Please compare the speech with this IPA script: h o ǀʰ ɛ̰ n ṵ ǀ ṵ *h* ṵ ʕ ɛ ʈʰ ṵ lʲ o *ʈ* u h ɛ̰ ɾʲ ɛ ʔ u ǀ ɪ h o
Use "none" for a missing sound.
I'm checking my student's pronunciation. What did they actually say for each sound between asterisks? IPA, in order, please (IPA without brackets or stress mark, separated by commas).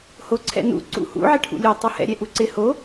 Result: h, tˤ